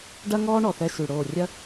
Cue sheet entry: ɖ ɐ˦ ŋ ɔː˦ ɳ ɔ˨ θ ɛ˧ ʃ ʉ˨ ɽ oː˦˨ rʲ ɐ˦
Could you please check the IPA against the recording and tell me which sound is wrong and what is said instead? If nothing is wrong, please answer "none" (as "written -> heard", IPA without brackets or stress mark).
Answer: none